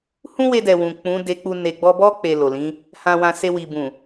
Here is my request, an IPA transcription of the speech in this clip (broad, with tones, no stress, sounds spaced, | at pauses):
h ũ˦ w e˧ d ɛ˨ w ũ˨ k͡p ũ˨˦ d e˧ k͡p u˧ n e˨ ɡ͡b ɔ˧ b ɔ˦ k͡p e˧ l o˨ l ĩ˨˦ | h ã˧ w ã˧ s e˧ w i˨ b ũ˨